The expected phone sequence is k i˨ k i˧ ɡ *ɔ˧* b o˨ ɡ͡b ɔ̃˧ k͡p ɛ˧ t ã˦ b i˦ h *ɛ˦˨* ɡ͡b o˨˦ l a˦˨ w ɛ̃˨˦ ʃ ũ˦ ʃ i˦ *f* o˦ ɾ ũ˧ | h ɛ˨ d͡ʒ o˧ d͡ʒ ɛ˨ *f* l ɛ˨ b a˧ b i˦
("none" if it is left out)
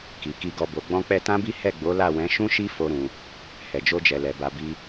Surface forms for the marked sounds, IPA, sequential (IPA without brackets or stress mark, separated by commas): ɔ˧, ɛ˦˨, f, none